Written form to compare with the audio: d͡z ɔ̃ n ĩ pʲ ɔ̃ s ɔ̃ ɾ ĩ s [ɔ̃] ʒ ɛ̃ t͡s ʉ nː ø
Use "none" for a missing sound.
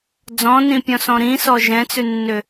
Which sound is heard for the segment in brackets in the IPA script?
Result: ɔ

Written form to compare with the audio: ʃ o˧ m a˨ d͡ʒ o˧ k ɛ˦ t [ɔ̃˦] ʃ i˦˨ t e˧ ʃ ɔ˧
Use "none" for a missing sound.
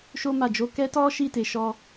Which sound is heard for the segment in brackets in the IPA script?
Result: ɔ˦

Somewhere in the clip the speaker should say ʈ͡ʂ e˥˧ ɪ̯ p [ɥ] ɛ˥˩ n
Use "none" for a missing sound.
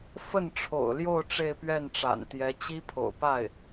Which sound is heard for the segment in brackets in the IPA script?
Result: ɥ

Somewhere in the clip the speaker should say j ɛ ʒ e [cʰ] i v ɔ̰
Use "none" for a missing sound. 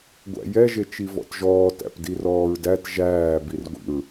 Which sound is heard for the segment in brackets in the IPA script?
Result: t͡ʃ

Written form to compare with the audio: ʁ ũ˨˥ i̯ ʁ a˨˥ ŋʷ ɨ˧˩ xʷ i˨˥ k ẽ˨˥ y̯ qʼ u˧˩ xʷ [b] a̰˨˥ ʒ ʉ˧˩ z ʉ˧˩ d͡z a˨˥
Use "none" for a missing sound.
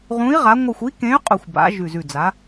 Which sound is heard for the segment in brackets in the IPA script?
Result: b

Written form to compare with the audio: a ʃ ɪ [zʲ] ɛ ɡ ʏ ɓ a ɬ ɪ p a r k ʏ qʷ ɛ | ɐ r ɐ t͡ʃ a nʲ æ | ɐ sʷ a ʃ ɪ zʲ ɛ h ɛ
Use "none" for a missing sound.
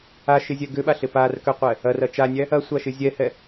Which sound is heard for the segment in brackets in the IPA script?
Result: zʲ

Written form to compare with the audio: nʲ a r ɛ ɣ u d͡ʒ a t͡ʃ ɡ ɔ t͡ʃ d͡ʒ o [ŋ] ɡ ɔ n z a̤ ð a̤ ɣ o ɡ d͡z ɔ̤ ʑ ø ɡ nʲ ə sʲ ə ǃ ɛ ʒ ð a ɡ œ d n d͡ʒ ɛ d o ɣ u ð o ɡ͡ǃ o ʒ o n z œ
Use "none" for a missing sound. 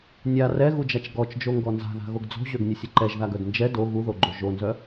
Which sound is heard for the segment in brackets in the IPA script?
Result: ŋ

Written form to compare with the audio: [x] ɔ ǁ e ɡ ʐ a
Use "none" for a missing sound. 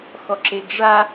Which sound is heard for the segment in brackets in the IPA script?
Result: x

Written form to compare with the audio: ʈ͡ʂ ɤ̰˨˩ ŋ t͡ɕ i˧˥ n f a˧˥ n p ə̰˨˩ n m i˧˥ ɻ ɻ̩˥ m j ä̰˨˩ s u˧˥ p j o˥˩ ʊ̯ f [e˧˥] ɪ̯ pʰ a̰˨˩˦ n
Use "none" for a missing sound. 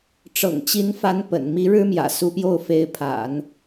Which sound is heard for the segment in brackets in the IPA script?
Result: e˧˥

